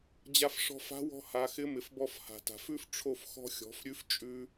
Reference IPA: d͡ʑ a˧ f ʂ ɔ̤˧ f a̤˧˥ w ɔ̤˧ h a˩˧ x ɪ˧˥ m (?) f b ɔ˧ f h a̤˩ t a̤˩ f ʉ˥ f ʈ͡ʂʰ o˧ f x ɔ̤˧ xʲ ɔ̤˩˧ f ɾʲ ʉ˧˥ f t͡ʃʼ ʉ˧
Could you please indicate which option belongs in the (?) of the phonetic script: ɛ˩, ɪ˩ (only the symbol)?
ɪ˩